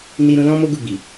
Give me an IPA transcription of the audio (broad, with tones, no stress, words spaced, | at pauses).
ni˧ɾũ˧ lɔ̃˦mo˦ ɡu˦˨ɡ͡bi˨